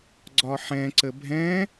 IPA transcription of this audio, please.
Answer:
ɡ͡ǀ ɒ ħ ɛ̃ ǀ ə bʱ ɛ̃

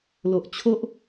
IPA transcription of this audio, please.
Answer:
l o˨ ʔ t͡ɕʰ o˦ ʔ

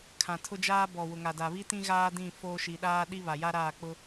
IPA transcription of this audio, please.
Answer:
kʰ ã˨ tʰ ʊ˦ d͡ʒ aː˦ b ɔ˨ w ʊ˨ ŋ a˨ d a˨ β i˦ t ĩ˦ ɣ aː˦ d ĩ˦˨ f oː˦ ʃ i˨ ɗ aː˦ ɗ i˦ β a˨ j a˦ ɾ aː˦˨ k͡p ʊ˦

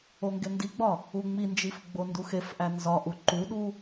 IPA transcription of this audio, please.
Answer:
o ŋ ɡ e n d i ɡ͡b ɒ | u ŋ͡m i n d͡ʒ i f ɡ͡b o n d u x e f ʔ æ n z ɒ ʔ u ǃ u ɗ u

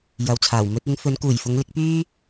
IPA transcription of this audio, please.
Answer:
j ɐ˨ w t͡sʰ aː˨˩ w m ɵ˧ t̚ ɪ˨˧ ŋ f ɵ˨˧ n k uː˨˩ j f ʊ˨˧ ŋ l ɪ˨˥ k̚ p yː˥

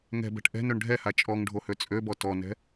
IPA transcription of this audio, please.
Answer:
ŋ ɛ̤ b ɛ̤ ʈ ʔ ɛ̤ n ø ɳ ɖʱ ɛ h a t͡ʃʼ ɔ ŋ ɖʱ o h ø t͡sʼ ø b ɔ t ɔ n ɛ̤

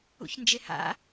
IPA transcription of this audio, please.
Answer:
ṵ ç n d͡ʒ e h a̰

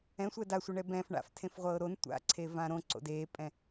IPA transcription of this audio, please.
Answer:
ɛ̃ sʷ ɛ d a sʷ ɛ ɳ ɛ b ɛ̃ f ɳ a̰ f tʰ ẽ f ʁʷ ɤː ɾ o n tʷ a̰ ǀʰ e v ã ɾ õ ǀ o̰ d eː pʼ ɛ̃

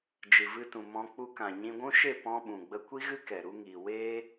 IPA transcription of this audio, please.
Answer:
d͡ʒ ɨ˨ v ɨ˧ t ũ˨ m ɔ̃˧ k͡p u˧ k ã˨ ɲ ĩ˧ ɡʷ ũ˦ ʃ e˦˨ p ɔ̃˧ ɓ ũ˨ ɡ͡b ə˦ kʷ i˦ ɣ ɨ˦ k ɛ˨ ɾ u˧ ŋ iː˨ w eː˦

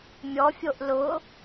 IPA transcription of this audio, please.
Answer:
mʲ ɔ fʲ o ʔ l ʊ

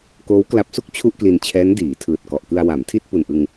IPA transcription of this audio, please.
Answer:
k oː˦˥ w k l a˦˥ p̚ s u˥˩ k̚ t͡ɕʰ u˥˩ ʔ k l i˧ n t͡ɕʰ ɛː˦˥ n d iː˩˦ tʰ ɯː˨˩ t̚ k ɔ˨˩ ʔ k ɯ˧ a̯ w a˩˦ m tʰ i˥˩ t̚ p u˨˩ n ʔ ɯ˧ ŋ

